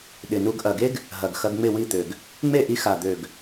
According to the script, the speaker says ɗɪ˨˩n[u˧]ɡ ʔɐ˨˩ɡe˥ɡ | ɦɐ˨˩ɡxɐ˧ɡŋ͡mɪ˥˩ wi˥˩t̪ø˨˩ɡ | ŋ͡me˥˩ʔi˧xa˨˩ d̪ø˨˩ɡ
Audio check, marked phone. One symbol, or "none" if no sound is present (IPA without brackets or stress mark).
u˧